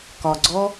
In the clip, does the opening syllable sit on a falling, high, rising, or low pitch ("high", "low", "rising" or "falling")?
low